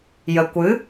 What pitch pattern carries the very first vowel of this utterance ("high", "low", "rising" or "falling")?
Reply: low